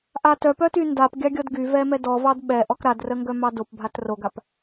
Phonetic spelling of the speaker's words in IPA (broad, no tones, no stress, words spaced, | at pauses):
ʔatœpœty ndapɡʲɑ ɡʲɔdɡyvɛ mɛdɔvɑd ɓɛʔɔk ɾadrəŋɡœ mɑdopbʱat roɡap